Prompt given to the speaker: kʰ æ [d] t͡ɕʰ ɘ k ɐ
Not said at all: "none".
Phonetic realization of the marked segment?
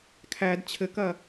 d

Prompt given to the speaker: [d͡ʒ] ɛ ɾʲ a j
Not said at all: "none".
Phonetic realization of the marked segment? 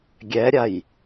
ɡʲ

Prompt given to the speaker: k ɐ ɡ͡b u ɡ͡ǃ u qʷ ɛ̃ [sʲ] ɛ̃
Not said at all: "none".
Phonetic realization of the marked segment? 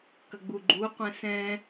s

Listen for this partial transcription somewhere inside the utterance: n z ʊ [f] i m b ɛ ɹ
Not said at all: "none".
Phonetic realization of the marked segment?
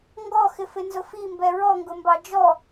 f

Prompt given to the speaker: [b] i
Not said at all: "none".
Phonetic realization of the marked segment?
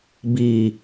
b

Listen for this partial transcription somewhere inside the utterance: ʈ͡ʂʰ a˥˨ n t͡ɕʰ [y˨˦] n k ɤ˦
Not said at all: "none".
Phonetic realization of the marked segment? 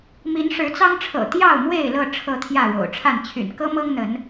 y̰˨˩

